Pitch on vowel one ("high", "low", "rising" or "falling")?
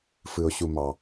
low